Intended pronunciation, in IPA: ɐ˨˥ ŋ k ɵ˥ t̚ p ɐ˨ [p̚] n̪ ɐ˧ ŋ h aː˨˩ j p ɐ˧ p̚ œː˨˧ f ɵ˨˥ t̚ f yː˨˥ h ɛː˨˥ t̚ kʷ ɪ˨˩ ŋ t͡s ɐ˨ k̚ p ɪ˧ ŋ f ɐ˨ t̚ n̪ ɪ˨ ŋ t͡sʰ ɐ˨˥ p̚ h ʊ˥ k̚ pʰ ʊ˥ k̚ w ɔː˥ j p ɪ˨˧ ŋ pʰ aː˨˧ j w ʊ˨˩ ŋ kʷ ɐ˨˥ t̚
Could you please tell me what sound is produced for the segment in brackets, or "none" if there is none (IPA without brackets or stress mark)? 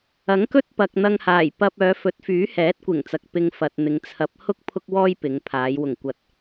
k̚